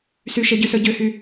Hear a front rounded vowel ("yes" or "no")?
yes